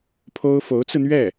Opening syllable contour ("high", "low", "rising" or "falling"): high